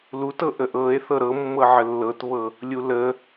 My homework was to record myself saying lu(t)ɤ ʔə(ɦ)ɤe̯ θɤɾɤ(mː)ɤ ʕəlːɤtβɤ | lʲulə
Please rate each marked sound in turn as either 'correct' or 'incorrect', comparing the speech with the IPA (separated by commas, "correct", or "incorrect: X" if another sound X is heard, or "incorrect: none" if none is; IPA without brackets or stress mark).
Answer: correct, incorrect: ʔ, correct